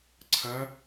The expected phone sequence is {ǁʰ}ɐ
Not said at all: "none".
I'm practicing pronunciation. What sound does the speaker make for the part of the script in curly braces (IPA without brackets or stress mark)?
ǀʰ